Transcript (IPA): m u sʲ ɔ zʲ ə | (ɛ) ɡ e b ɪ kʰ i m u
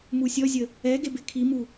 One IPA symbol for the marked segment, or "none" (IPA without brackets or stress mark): ɛ